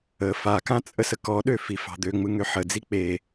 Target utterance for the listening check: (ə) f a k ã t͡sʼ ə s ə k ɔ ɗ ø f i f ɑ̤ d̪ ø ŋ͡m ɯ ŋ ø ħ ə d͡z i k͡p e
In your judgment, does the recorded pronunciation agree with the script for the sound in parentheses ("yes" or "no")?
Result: yes